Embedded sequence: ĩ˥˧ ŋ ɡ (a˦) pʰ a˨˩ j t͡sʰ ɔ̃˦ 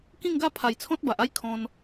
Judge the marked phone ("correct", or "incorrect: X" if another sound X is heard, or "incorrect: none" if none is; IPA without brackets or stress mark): correct